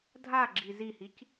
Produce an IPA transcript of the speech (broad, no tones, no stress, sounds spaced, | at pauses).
dʱ a ɡ͡ǁ i z i h i c